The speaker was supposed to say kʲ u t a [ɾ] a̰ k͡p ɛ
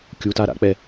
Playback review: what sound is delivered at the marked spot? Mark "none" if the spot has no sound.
ɾ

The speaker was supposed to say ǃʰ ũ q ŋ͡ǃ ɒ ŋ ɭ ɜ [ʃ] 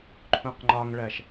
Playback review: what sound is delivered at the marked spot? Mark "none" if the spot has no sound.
ʃ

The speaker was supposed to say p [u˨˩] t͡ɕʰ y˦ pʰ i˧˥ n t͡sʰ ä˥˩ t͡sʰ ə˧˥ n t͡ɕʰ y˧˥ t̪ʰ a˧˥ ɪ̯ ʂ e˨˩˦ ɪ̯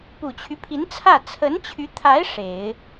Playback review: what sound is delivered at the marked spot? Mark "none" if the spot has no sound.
u˨˩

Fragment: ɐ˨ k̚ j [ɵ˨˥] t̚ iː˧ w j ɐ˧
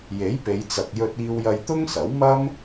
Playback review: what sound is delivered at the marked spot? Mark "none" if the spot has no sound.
ɵ˧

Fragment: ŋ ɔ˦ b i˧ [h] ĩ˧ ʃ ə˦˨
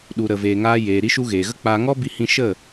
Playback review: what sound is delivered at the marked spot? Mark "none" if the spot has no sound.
h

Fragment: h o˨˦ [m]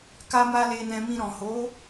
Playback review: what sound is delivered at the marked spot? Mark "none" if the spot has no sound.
none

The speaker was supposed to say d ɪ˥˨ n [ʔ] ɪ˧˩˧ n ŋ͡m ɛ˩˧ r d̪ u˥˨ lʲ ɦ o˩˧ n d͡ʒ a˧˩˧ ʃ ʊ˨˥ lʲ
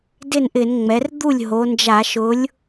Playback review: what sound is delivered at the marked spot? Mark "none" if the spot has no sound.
ʔ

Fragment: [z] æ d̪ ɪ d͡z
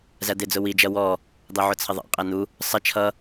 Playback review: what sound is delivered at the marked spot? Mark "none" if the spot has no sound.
z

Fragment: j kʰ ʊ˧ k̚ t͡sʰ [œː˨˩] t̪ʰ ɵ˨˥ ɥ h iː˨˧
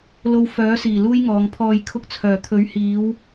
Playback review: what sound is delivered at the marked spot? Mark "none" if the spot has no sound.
œː˨˩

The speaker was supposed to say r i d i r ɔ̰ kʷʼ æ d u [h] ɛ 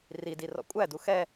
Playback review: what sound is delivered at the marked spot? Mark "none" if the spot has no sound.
x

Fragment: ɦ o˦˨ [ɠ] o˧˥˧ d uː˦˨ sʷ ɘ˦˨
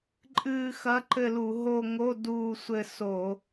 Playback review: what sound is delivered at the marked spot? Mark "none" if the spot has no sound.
ŋ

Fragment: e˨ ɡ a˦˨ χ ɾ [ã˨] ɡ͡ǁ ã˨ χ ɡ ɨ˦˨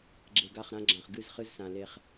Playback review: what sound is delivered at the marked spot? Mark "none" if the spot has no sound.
ã˦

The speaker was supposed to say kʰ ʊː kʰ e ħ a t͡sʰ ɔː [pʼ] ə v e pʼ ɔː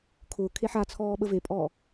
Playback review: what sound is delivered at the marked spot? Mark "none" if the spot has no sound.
ɓ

